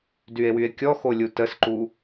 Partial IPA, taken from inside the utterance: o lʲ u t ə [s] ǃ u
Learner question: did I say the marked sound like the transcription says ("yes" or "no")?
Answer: yes